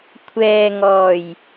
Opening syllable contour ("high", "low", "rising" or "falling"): low